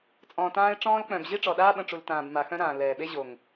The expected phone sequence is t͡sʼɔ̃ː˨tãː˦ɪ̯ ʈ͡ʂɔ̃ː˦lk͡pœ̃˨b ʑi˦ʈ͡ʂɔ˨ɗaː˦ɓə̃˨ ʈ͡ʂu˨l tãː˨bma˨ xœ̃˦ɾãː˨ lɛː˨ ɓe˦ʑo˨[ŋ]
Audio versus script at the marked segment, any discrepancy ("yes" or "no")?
no